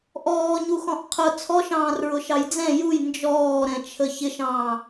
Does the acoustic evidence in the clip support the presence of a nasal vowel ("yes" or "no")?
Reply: yes